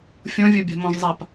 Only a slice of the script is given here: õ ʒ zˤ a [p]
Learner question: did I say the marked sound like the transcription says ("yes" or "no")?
yes